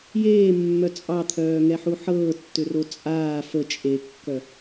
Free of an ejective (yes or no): no